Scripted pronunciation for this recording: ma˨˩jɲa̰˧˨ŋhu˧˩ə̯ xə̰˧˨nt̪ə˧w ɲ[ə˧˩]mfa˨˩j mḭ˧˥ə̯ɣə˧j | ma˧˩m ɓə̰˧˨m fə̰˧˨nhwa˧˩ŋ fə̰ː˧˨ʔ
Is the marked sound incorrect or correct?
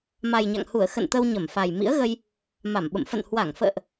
correct